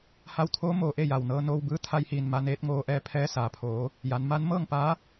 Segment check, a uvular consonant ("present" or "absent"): absent